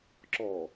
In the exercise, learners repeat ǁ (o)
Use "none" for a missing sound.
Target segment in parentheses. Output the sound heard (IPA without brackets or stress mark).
ɔ